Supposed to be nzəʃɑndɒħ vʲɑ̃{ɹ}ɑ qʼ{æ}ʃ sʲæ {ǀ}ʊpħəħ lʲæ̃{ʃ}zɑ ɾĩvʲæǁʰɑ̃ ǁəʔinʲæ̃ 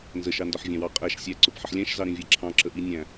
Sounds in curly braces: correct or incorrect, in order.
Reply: incorrect: w, correct, correct, correct

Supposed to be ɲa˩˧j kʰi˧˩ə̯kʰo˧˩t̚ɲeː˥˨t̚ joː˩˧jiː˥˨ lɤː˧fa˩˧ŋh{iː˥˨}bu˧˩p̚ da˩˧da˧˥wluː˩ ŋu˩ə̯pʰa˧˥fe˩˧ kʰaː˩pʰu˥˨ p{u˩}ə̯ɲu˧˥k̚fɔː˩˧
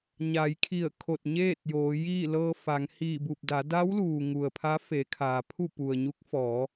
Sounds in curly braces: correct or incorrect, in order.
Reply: incorrect: iː˧˩, correct

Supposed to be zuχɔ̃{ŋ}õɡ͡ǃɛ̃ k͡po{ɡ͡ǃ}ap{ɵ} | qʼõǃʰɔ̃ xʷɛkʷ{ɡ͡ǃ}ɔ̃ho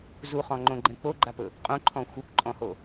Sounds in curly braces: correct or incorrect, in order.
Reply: incorrect: ŋ͡ǃ, correct, correct, incorrect: ǃʼ

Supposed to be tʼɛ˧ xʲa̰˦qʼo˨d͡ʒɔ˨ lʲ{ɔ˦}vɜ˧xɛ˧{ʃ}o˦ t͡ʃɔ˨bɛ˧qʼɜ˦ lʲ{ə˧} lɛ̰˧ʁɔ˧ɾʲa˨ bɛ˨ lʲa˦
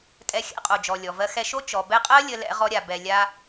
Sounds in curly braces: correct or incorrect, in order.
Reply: incorrect: ɔ˨, correct, correct

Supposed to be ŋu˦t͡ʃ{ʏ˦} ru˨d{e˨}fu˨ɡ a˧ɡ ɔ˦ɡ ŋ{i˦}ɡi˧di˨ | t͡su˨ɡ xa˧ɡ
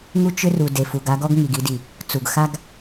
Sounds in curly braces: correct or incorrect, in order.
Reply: correct, correct, incorrect: i˨

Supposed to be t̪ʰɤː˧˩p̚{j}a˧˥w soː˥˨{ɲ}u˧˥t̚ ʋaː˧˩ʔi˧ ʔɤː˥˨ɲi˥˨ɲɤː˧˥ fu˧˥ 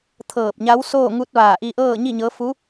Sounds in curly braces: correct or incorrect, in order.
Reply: incorrect: ɲ, incorrect: ŋ

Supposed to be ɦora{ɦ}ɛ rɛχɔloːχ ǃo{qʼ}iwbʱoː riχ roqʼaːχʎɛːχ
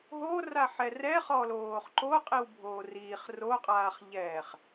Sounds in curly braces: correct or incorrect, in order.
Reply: incorrect: ħ, correct

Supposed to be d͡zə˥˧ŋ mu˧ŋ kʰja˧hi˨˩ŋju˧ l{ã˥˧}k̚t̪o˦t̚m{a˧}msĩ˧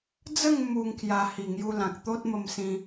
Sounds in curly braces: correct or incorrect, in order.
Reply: incorrect: ã˨, incorrect: ə˧

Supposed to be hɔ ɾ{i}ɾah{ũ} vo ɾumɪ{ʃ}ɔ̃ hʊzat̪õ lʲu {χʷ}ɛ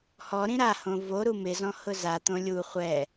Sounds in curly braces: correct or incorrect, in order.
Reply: incorrect: ĩ, incorrect: õ, incorrect: z, correct

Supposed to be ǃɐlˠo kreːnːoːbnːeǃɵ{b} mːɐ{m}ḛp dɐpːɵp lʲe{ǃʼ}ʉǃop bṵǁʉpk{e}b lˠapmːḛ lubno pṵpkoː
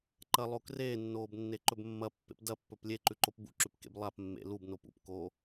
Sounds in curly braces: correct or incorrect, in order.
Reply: correct, incorrect: pː, incorrect: ǃ, incorrect: ḛ

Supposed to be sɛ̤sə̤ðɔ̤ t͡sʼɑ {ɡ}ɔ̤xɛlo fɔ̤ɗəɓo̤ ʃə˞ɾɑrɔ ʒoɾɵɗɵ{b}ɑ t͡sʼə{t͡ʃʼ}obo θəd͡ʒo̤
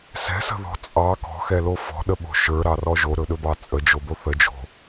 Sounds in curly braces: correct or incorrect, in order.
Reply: incorrect: k, correct, incorrect: d͡ʒ

